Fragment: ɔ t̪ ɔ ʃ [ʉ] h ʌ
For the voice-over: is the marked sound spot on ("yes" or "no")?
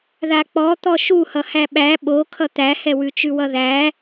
no